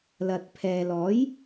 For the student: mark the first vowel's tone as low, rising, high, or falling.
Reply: low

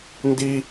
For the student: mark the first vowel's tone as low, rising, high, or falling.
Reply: high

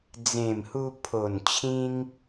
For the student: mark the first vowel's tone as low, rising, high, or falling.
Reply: low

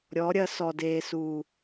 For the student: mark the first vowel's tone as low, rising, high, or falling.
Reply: rising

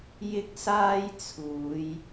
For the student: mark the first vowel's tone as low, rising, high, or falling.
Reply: high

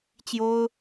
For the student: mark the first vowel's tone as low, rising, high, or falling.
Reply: high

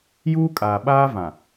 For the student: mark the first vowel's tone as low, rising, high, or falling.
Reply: high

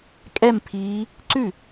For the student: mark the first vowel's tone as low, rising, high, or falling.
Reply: falling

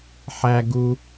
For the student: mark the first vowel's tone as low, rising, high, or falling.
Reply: high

